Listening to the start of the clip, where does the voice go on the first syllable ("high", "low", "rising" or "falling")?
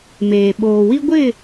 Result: low